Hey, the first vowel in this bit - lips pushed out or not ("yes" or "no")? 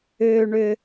yes